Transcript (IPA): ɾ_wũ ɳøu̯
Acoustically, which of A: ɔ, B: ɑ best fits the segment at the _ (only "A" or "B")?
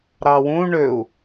B